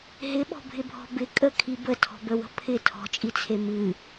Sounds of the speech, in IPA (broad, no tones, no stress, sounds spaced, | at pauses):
ɦ ɪ ɓ ɔ̤ bʱ ɪ bʱ ɔ̤ b ɪ kʼ ə kʰ i b ə tʰ ɔ̤ b ə w ə̤ pʰ ɪ tʰ ɔ̤ t͡ʃʼ i t͡sʰ e m ɨ